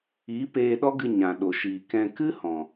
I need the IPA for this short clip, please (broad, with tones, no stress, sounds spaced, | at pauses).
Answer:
i˨˦ p eː˧ ɗ ɔ˦ ɡ ɨ˧ ɲ ã˨ ɗ o˨ ʃ iː˨ k ɛ̃˧ k ɨ˦ h ɔ̃˨